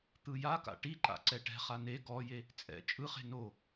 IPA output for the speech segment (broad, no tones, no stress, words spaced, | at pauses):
t̪ɯjaka̰ ʈiǃa̰ ǀɛʈɛ̤χa ne ɡɔje | t͡sʼɛ̰ t͡ʃʼɯχe̤ no